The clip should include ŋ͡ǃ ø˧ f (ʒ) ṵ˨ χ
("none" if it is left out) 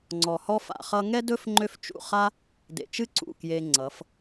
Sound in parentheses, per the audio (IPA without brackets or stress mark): t͡ʃ